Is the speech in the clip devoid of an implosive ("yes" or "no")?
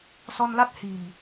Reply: yes